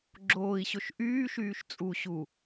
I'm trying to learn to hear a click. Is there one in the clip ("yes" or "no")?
yes